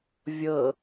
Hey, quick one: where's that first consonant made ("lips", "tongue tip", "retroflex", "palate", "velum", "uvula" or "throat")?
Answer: lips